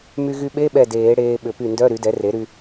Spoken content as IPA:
m y˧ ɣ y˧ ɓ e˧˥˧ ɓ ɛ˧˩ d eː˨˩˦ ɽ eː˧ ɓ ʏ˨˩˦ p y˧˩ n d œ˧˥˧ ɾ y˩˥ d ɛ˩˥ r e˩˥ ɾ y˧

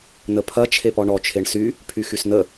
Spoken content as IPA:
n ə pʰ ɐ t͡ʃʰ e p ɔ ɳ ɔ t͡ʃʰ e ɳ s y | pʰ y x y s n ə

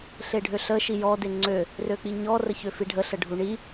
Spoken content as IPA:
ɬ e ɖʱ ø ɬ ə ʃ i j ɔ d e ŋ͡ǀ ø | r ø k͡p i ɲ ɔ r ə ç ø f i ɖʱ ə ɬ ə ɖʱ u ɳ i

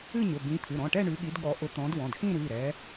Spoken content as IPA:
ɨ˥˧ ɲ ʊ˩˧˩ b ĩ˨˦ t̪ʰ ɨ˩˧˩ ɾ ɔ̃˩˧˩ ʈ ɛ˥˧ ɳ ʉ˨˦ ɠ i˨˦ d ɠ ɔ˨˦ ʔ ʊ˨˦ t̪ ɔ̃˨˦ d w ɔ̃˩˧˩ d x ĩ˥˧ ɾ ʉ˩˧˩ ɾ ɛ˨˦

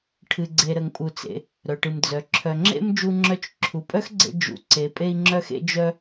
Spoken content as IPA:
ʈʰ ɨ˩ ɡ͡ǀ e˩ ɾ ə˩ ŋ pʼ u˩ t͡s ḛ˩ | ɾ œ˩ ʈ ɨ˩ m d͡z œ˩ ǁʰ œ˩ ŋ͡ǁ ḛ˥ m d͡ʒ u˧ ŋ͡ǁ œ˧ t͡ʃ ǁʰ u˩ pʼ œ˥ x ɡ͡ǀ ḛ˧ d͡ʒ ṵ˩ ǀ e˩ pʼ e˧ i̯ ŋ͡ǁ œ˧ x ḛ˧ d͡ʒ œ˧

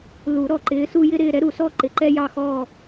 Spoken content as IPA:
l u˨˩˦ ɾ ɔ˨ ǃ ɪː˨˦ s u˦ j ɪ˦ ɾ ɪː˦˨ ɾ ɛ˦ ɾ u˨ s ɔ˦ ǃ ɪ˨˩˦ ǃ ɛ˦ j ɑ˦˨ x ɔː˦˨

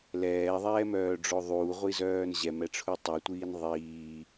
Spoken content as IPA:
l ɛː ðˤ ɛː m œː ɖ͡ʐ o ðˤ uː ʁʷ i z œː n ʑ ɛ m ɛ ʈ͡ʂʰ u tˤ œ tʷ iː n ðˤ iː

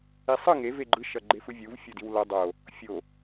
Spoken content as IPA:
i sˤ ɯ ŋ e v e ɡ͡ǃ ɯ ʃ ʌ ɡ͡ǃ e f ɯ vʲ u v fʲ o d i w l ʌ dˤ o | fʲ o

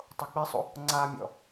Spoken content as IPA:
tˤ o k͡p i sˤ ṵ | ŋ͡ǀ a mʲ ɔ̰

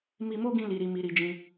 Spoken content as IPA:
m i˧ m o˦ ɡ ĩ˧ l i˨ ɾ i˨ m i˨ ɾ i˧ d͡ʒ ĩ˧

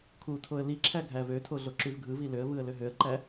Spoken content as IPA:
kʰ u tʰ o ə̯ l i ǁʰ æ ɡʱ æ v ø tʰ o ɮ o ǁ y v ɡʱ ɯ v i l ø ə̯ v ɯ ə̯ l ø ɦ ø ə̯ ǃ æ

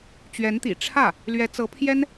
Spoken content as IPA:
t͡ɕ ɥ ɛ˧˥ n t̪ ḭ˨˩ ʈ͡ʂʰ ä˥˩ | l ɥ ɛ˧˥ t͡s ɤ˧˥ pʰ j ɛ˥ n

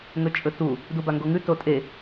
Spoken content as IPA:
ŋ ɵ t͡ʃʼ ɵ t u | d u b a ŋ ɡ o ŋ ʉ t o tʼ e

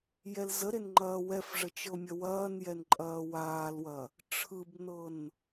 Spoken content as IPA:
j ɛ l z ə ɾ e n ŋ͡ǃ ɐː w ɛ f ʐ ə t͡ʃ ɤ mʲ ɐ w ɐː n j ɛ n ǃʼ ɐː w aː l w ɐ | ʈ͡ʂʰ ɯ b n ɤ n

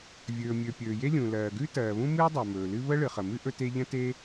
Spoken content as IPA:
vʲ ɵː˩ mʲ ɵ˩ pʲ ɵː˩ j e˥ lʲ ũ˩ l ɜː˩ ɡ ʉ˥ t ɜː˩ β ũ˥ m ɨː˥ dˤ ɜ˩ m ɵː˩ l ɨ˥ β ə˥ ɭ ɨ˩ χ ə˩ m ɨ˥ ʔ ɵ˥ t e˥ ʎ ə̃˥ t e˥

